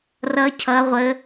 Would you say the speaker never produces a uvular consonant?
no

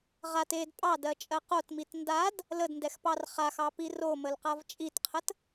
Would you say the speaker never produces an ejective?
no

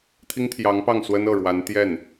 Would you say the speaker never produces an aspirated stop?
no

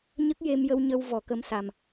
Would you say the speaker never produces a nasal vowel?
yes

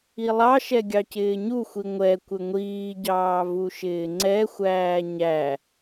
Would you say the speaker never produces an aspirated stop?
yes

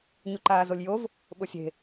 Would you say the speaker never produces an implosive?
no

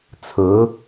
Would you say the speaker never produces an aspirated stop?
no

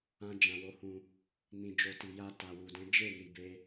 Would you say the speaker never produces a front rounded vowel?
yes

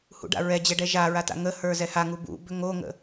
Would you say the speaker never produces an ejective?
yes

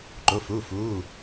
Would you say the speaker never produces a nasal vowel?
yes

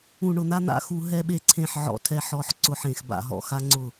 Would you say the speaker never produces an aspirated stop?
no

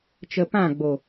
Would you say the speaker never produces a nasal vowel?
no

